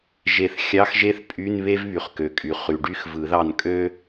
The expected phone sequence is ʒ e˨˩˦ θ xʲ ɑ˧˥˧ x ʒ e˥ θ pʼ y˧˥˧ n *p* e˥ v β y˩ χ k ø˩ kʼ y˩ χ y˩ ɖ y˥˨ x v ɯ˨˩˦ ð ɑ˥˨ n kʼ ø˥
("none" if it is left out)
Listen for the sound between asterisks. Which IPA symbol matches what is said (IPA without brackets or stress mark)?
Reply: β